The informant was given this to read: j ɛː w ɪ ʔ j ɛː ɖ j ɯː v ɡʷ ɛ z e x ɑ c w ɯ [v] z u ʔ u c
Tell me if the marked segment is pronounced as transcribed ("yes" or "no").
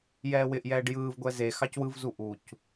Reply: yes